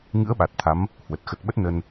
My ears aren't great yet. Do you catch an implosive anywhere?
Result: yes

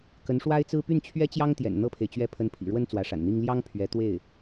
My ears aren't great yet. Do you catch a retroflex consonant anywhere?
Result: yes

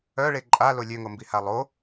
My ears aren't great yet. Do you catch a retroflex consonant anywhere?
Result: yes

